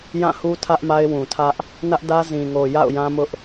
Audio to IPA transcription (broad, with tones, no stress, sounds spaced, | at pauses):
j ã˦˨ h u˦ tʰ ä˦ ʔ m a˦ ɪ̯ w ũ˨ tʰ ä˦ ʔ | n ä˦ ʔ d ä˦ z ĩ˨ ŋ o˨ j a̰˦˨ ʊ̯ j ã˦ m ʊ˦ ʔ